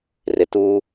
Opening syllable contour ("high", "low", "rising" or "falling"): low